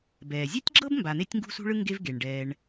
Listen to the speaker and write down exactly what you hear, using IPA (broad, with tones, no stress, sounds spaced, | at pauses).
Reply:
b ɛː˩ zʲ ɛ˥ tʲ ɡ͡ǁ ɤ˥ b m b a˨ n̪ e˦ tʲ ŋ ɡ ṳ˦ s ṳ˦ ɭ ɯ˦ ŋ ɡ e˦ v ɡ e˩ ɳ ɖ ɛː˨ ɳ